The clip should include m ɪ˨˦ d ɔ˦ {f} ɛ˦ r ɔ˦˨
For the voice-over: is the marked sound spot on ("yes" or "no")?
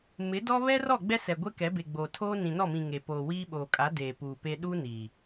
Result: no